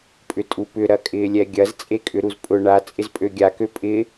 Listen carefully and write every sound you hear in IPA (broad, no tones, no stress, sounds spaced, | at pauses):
pʼ ʏ tʼ u p ʏ ɾ ɐ kʼ ɪː lʲ ɛ ɡʲ ɐ z t͡sʼ e kʼ ʏ ɾ u z pʼ ʊ ɳ a t͡sʼ ɪ z pʼ ø ɡʲ a k ø pʼ ɪ